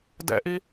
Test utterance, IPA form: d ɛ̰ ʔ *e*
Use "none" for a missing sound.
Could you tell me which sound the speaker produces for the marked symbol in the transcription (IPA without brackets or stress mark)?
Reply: i